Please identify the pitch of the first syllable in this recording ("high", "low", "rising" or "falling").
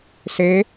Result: rising